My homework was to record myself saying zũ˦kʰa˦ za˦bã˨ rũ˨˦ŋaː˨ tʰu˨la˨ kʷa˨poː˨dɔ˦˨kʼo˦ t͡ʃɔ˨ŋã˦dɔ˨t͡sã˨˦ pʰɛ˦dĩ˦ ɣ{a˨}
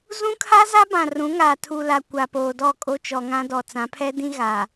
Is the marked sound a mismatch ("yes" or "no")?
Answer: no